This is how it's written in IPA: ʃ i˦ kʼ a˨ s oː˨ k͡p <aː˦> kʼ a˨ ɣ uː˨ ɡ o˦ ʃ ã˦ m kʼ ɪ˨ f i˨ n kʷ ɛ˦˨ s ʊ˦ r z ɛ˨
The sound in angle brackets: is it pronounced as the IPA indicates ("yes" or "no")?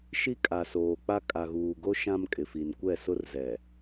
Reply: no